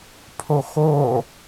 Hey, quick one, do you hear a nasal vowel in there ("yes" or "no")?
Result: no